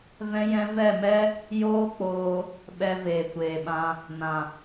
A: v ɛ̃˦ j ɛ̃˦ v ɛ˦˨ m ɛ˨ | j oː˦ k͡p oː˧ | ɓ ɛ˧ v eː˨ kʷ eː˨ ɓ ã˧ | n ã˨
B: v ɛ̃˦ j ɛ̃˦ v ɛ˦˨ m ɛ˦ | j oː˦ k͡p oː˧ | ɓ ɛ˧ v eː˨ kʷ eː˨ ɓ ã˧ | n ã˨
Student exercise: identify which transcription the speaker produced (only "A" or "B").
B